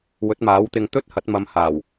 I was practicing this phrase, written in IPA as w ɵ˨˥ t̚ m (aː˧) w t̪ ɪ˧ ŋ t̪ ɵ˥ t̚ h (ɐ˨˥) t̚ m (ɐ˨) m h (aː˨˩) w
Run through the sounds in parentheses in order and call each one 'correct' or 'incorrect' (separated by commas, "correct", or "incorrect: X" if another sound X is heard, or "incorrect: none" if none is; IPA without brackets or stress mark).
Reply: incorrect: aː˨˥, correct, incorrect: ɐ˨˧, correct